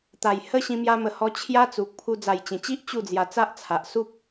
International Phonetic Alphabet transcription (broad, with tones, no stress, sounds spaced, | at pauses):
t̪ a˨˩ j h ə˦ ɕ ĩ˧ m j a˧ m ə˨˩ h ɔ˧ t͡ɕʰ j a˦ t͡s u˨ k̚ pʰ u˧ d͡z a˨˩ j t͡ɕ ẽ˨˩ t͡ɕ i˦ ʔ t͡ɕ u˥˧ d͡z j a˧ t͡s a˦ ʔ t͡sʰ a˨ ʔ s u˦ p̚